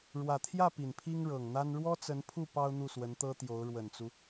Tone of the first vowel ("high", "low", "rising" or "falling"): low